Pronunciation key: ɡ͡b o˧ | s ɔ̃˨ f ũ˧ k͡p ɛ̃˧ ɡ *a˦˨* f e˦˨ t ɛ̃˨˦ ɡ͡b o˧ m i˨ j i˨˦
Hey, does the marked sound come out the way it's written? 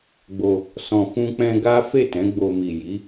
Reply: no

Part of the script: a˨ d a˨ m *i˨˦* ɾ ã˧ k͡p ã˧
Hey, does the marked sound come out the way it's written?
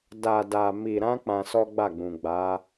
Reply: no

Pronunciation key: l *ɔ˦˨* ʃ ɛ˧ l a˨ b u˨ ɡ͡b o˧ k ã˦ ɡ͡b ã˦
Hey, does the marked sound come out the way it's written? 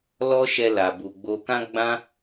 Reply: no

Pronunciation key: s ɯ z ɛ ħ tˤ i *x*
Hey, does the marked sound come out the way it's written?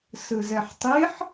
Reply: no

